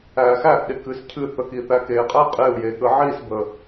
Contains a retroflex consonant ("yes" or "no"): no